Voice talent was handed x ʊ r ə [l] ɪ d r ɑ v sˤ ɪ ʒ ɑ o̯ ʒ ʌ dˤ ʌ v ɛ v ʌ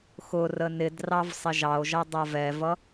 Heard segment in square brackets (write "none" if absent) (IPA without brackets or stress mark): n